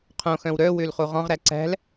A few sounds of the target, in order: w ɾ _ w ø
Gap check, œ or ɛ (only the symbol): œ